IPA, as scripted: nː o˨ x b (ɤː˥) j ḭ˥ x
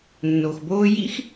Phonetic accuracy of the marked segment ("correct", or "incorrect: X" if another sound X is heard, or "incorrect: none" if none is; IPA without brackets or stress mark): incorrect: oː˥